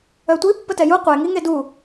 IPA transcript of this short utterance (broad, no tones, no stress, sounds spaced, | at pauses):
œ tʷ i pː ə t ɛ j u qʷ e ŋ i ŋ e d u